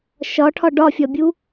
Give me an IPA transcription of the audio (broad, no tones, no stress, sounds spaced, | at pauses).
ʃ ɒ ʈʰ ɒ ɖ ɒ fʲ ɒ bʲ u